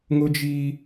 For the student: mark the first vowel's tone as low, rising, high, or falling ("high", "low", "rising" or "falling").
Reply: high